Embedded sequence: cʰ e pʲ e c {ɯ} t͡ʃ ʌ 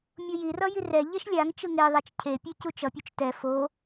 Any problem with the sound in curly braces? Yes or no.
yes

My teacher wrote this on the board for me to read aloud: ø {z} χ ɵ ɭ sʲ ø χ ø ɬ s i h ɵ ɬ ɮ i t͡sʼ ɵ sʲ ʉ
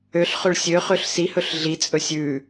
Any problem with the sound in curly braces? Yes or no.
yes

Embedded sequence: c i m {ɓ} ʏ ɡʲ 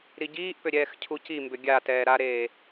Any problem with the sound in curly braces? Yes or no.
yes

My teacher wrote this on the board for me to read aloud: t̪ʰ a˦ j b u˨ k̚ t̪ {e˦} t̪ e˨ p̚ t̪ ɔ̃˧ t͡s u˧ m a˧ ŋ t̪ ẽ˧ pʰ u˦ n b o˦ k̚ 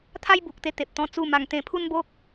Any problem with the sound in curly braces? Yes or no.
yes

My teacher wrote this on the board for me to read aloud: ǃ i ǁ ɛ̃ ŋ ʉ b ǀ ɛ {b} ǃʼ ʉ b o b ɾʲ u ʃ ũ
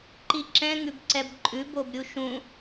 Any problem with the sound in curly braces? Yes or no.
no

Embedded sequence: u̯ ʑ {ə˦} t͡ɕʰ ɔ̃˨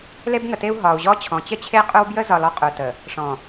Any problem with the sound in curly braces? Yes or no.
yes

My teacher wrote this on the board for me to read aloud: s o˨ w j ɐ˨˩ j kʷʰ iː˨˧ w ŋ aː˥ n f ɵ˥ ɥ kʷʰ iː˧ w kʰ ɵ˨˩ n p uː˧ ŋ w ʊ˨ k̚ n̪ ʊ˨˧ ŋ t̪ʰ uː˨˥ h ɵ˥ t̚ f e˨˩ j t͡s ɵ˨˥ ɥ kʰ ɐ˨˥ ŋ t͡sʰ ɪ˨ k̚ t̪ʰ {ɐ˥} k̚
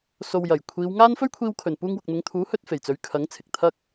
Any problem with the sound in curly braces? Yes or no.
no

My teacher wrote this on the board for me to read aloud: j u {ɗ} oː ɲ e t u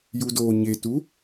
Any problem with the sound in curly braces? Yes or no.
yes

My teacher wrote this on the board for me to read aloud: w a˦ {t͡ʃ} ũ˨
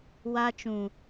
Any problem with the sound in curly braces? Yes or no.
no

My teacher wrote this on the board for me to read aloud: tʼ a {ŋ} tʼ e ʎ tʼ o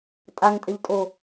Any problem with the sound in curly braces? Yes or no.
no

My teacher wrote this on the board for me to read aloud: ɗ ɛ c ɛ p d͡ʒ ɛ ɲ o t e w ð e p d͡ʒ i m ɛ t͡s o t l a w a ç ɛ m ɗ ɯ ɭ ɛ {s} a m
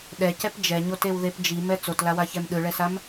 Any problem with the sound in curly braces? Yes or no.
no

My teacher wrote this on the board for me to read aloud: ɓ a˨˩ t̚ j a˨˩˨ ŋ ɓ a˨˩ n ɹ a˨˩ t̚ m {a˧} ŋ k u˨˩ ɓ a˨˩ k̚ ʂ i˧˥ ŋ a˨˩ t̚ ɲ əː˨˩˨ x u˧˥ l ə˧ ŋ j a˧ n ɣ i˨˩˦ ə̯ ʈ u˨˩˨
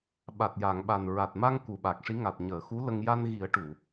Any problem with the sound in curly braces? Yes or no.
no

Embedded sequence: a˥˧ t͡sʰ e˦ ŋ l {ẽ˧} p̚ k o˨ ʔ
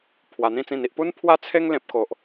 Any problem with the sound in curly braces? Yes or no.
yes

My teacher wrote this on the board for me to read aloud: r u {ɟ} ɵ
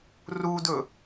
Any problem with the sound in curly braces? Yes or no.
yes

